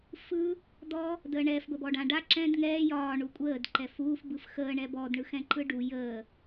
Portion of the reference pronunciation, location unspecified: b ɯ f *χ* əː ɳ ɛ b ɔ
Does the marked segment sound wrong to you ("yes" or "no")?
yes